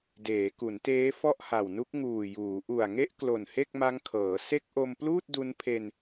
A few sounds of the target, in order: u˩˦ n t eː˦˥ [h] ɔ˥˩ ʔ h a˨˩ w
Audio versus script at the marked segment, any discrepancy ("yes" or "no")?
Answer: yes